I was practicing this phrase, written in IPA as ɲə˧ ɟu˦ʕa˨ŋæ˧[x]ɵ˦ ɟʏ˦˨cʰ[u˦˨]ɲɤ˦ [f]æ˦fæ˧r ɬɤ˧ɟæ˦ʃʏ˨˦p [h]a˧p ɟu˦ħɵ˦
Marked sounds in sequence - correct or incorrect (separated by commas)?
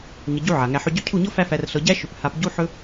incorrect, correct, correct, correct